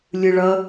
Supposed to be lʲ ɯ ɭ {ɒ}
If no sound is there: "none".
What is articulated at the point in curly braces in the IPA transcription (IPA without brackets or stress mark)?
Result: ʌ